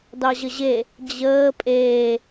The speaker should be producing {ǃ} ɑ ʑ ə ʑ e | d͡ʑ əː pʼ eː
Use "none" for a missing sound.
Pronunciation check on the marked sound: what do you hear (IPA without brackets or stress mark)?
d